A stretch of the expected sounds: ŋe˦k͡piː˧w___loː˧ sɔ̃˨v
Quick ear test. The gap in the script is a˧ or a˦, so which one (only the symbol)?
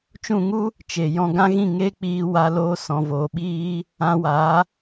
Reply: a˧